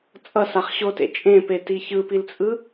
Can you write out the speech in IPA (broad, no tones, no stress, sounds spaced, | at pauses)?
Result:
t͡sʼ ʌ s a χ ɕ o t ḛ t͡ʃʼ ẽ p e t i ç ɯ p i l t͡sʼ ɯ